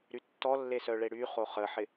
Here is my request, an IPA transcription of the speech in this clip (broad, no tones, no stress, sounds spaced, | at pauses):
ɾ y tː ɔ lː e s œ ɭ e ɽ y χ o χ ə ħ ɪ